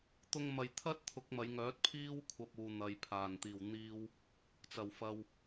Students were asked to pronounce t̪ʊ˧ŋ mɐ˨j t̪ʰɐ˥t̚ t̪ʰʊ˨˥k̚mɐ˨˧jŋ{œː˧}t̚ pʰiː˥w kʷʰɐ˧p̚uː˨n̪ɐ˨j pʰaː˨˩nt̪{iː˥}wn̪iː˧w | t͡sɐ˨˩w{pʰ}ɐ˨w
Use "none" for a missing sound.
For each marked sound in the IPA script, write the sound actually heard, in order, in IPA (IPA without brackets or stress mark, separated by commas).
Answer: œː˨˥, iː˨˩, f